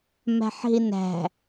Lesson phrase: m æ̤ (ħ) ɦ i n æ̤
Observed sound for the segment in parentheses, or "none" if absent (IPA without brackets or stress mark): ħ